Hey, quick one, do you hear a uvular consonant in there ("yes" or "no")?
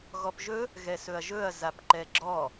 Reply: no